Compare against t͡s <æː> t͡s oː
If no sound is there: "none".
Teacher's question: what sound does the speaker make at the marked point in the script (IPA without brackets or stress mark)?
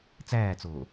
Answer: æː